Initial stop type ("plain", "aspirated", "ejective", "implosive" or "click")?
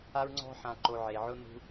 click